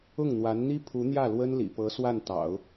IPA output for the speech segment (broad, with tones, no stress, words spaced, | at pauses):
ʊ˥˩ŋn̪wa˧˥nn̪i˥ pʰu˧˥n̪jä˥˩ lwə˥nlḭ˨˩pɤ˧˥ swa˥˩nt̪ɑ̰˨˩˦ʊ̯